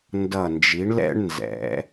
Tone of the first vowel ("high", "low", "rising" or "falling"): low